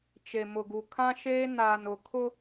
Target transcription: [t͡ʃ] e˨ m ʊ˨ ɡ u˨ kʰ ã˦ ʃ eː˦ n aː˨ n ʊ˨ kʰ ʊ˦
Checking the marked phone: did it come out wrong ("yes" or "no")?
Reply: no